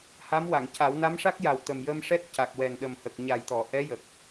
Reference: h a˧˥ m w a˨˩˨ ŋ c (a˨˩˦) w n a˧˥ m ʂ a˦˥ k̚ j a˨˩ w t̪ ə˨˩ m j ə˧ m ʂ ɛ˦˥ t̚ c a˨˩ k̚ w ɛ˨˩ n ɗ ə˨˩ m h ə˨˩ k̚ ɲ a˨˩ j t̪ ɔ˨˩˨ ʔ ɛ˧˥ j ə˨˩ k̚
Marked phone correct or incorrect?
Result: correct